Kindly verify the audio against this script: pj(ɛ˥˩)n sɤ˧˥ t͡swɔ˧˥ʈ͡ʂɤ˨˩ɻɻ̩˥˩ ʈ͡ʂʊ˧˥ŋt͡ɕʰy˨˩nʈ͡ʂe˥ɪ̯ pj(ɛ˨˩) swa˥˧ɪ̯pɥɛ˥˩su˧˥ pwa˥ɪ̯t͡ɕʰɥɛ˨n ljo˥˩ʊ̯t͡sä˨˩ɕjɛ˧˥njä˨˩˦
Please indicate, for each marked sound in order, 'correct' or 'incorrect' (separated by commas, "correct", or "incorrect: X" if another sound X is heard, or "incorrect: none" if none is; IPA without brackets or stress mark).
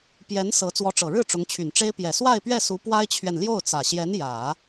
incorrect: ɛ˧˥, correct